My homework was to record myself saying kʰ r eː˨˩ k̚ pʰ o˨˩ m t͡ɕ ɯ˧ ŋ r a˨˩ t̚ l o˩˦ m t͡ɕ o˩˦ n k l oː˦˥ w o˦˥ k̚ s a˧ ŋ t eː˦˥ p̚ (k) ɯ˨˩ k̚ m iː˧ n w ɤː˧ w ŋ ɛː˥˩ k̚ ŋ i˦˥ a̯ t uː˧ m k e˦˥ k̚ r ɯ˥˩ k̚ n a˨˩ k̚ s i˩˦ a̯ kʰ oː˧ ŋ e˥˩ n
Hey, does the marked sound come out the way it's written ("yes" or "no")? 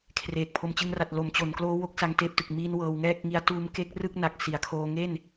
no